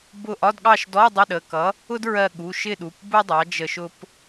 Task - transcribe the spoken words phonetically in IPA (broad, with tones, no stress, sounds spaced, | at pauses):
b ʊ˦˨ ʔ ɒ˧˥˧ d ɠ ɑ˦˨ ʃ d ɔ˧˥˧ dˤ ɪ˧˥˧ ɗ ə˩˧˩ k ʌ˨˥ | ʊ˥ d ɹ ɜ˦˨ ɠ u˩˧˩ ʃ ɪ˦˨ ɗ u˩˧˩ p b u˥ dˤ ɑ˨˥ d͡ʒ ə˦˨ ʃ ʊ˥ p